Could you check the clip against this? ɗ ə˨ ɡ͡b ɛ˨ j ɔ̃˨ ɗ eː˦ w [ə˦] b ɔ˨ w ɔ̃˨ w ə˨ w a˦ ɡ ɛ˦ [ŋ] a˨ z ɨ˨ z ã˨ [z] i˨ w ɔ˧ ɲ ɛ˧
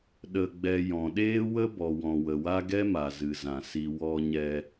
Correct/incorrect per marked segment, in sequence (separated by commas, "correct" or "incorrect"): correct, incorrect, incorrect